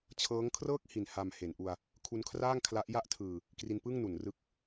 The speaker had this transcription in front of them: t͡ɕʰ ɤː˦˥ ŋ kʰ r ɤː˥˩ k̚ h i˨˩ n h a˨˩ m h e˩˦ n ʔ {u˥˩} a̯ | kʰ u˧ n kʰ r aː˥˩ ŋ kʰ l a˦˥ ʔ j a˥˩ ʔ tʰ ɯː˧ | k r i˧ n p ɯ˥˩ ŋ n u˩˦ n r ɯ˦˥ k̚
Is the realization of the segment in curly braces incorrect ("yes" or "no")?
yes